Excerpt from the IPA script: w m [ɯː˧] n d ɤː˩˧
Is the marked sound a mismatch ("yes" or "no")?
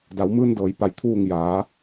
no